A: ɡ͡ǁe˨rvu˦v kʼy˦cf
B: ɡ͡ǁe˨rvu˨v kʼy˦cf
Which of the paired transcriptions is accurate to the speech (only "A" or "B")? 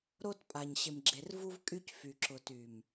A